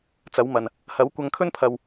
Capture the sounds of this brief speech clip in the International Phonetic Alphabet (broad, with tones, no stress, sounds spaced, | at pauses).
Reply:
t͡s ɐ˨˥ w m ɐ˨ n | h ɐ˨˥ w kʷ ɐ˧ ŋ kʰ ɵ˥ n pʰ ɐ˨ w